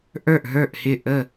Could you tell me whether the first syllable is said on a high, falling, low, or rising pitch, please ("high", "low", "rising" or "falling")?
falling